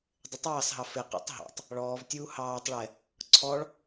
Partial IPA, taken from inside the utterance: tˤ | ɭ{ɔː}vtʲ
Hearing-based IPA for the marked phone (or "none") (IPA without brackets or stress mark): ɔː